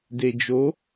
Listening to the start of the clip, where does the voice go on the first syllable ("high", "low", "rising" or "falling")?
low